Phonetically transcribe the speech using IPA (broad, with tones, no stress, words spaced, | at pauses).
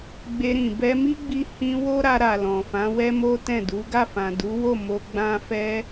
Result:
ɡ͡be˧ɾĩ˨ bɛ˧mi˦ɡ͡bi˧ hĩ˧ wo˦ɾa˧ɾa˨ lɔ̃˨fã˨˦wɛ˦ mo˦tɛ̃˦˨du˨˦ ɡa˦˨fã˨du˨˦wo˦˨ mo˧ ɡ͡bã˧fɛ˧